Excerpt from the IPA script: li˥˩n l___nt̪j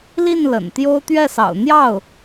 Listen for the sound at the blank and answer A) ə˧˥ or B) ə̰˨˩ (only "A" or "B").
B